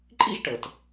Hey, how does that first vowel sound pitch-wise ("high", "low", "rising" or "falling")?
high